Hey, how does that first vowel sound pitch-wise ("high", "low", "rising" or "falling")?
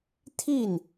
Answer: falling